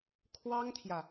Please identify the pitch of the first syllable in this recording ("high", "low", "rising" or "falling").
high